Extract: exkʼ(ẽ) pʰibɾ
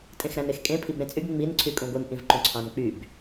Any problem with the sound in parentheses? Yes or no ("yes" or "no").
no